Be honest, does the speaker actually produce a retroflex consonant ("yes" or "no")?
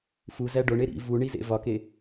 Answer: yes